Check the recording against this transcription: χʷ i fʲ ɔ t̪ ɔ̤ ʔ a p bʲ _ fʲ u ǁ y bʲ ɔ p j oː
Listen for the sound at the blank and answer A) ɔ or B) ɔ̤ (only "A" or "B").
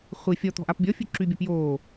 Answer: A